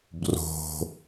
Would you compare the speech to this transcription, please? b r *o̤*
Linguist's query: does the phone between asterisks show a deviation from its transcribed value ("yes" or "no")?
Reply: no